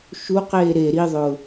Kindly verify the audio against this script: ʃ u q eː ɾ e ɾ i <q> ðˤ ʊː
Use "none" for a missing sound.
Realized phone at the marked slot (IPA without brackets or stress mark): none